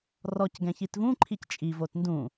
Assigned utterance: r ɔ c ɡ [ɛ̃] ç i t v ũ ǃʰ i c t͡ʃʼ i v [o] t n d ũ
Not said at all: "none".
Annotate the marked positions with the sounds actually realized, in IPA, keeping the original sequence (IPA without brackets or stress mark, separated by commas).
ɛ̃, o